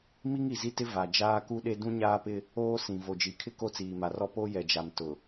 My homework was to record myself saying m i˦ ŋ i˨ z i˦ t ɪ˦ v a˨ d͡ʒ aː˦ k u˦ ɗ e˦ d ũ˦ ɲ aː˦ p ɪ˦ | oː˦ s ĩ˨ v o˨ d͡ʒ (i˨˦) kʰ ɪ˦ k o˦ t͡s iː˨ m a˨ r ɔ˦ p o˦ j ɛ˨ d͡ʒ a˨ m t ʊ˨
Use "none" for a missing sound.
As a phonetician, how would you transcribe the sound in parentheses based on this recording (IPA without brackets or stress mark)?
i˨˦